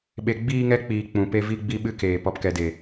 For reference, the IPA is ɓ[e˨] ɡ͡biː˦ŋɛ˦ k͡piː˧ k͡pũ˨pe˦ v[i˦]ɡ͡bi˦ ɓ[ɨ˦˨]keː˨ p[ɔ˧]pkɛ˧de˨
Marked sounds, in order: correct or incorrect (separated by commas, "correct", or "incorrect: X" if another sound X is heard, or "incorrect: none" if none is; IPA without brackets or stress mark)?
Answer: incorrect: e˧, correct, incorrect: ɨ˦, correct